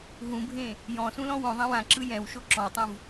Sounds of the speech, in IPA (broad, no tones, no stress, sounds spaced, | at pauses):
ɦ ũ bʱ ẽ | j ɔ̃ s ũ l ɔ̃ w õ ðˤ ẽ w ã ǁ ɯ j ɛ̃ w ʃ o ǁ ɔ̃ w tˤ ũ v